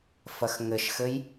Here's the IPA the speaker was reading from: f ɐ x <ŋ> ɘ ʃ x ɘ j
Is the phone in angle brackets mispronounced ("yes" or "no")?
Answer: no